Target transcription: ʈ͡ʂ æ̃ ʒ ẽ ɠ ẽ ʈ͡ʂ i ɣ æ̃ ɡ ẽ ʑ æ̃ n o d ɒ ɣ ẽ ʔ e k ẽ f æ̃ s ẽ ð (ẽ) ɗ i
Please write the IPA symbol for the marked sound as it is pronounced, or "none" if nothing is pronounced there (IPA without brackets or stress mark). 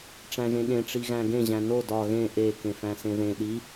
ẽ